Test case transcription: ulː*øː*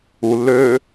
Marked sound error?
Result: no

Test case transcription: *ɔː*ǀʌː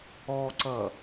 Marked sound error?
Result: no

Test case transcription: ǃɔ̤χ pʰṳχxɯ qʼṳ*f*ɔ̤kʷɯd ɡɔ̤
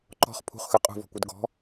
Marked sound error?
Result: yes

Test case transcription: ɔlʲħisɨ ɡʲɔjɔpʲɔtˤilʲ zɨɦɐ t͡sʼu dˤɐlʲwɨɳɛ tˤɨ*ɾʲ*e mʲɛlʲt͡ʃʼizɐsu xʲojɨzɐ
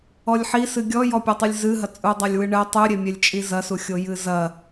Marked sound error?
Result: no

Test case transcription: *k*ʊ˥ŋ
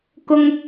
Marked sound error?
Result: no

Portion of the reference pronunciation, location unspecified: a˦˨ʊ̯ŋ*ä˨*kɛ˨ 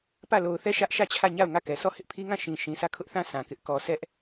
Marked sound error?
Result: yes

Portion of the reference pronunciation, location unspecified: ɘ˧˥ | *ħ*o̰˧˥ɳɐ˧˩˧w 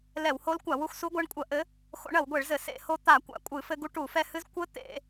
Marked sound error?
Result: yes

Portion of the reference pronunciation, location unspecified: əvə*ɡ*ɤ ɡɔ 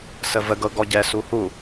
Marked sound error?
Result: no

